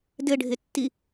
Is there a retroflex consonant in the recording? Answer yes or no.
yes